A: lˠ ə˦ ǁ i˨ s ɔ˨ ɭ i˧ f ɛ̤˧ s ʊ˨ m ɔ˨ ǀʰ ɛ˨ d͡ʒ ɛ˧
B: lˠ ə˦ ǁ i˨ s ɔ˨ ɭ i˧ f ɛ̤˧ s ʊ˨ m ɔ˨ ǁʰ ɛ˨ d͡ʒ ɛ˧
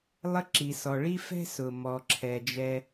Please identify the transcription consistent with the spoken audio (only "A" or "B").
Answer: B